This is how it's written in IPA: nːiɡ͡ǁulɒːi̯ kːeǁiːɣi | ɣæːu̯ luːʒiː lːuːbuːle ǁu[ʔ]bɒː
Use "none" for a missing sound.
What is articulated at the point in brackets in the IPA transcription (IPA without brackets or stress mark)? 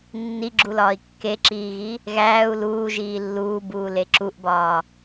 ʔ